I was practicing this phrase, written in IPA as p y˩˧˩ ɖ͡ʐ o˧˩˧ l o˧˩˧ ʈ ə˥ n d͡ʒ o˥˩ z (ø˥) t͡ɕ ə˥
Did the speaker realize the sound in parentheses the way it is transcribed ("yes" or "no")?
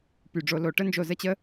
no